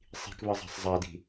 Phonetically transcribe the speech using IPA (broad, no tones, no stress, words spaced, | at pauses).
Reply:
sˤi̤kβɯzˤa̤sˤ zˤadi̤